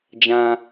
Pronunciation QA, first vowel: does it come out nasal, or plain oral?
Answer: nasal